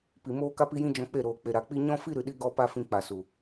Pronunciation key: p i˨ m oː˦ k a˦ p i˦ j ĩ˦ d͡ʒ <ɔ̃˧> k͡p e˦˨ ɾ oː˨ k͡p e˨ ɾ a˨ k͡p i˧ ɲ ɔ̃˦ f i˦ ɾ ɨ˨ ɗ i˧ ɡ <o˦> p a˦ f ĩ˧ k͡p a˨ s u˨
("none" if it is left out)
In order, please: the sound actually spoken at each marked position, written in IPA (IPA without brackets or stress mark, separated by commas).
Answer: ɔ̃˧, ɔ˦